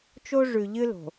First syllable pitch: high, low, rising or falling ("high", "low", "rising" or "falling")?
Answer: high